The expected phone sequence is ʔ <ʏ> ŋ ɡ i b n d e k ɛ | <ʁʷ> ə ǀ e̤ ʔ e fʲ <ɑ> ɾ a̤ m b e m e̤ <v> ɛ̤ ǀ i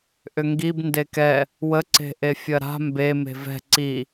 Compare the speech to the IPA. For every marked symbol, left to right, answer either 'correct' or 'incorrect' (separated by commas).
correct, incorrect, incorrect, correct